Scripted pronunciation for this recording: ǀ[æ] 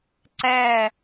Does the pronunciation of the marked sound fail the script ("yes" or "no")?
no